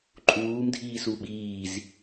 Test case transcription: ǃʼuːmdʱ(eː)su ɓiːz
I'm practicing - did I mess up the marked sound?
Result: yes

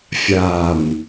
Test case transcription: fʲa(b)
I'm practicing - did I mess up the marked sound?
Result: yes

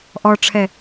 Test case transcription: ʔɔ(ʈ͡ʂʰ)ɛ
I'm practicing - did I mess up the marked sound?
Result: no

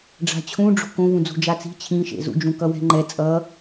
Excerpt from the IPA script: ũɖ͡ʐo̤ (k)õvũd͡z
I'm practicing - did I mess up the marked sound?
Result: no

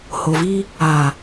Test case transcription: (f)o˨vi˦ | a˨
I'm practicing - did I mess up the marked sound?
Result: yes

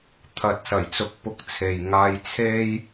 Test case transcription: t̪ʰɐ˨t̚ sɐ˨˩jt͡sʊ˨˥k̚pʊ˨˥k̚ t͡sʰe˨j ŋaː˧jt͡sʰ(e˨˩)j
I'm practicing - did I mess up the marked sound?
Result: yes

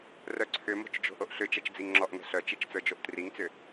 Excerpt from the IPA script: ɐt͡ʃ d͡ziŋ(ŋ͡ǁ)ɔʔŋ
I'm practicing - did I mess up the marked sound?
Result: no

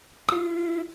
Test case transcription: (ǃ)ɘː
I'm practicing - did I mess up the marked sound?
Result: no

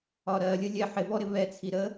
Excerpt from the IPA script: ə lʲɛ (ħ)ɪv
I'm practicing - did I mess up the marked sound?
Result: no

